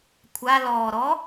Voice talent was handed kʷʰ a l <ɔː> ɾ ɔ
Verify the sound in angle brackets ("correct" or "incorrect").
correct